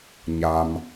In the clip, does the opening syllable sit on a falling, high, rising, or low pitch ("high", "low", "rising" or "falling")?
low